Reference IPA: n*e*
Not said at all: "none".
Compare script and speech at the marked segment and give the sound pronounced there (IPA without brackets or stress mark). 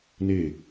e